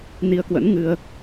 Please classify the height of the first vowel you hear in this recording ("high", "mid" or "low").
high